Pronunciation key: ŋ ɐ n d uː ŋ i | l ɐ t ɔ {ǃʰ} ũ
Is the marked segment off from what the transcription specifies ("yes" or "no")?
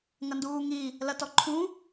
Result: no